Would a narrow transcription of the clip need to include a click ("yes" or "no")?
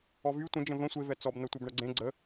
yes